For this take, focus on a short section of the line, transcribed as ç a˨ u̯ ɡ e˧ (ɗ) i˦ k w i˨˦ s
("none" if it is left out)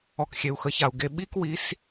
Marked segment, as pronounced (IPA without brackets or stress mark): ɓ